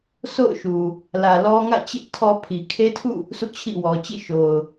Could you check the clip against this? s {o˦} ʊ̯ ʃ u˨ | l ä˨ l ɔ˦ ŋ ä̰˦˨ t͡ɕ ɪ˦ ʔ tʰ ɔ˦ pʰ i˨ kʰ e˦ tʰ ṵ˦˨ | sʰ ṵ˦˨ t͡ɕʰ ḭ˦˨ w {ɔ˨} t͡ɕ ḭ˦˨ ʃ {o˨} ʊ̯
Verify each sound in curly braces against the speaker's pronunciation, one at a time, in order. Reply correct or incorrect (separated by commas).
incorrect, correct, correct